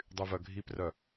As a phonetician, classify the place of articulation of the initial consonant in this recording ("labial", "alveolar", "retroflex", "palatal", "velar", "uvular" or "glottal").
alveolar